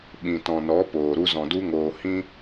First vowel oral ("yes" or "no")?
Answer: no